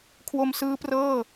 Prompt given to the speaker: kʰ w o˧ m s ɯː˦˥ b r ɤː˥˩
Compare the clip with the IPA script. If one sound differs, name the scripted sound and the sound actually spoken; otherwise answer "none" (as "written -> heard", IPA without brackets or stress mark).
b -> p